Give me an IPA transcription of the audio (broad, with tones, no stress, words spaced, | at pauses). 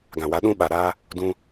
ɡã˨wa˨˦ ɗũ˦ ɓa˨ɾaː˦ | dũ˧